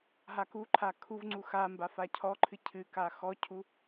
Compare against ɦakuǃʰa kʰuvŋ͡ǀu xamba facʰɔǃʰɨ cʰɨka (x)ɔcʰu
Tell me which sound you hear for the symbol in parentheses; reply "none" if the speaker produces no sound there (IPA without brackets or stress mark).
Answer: x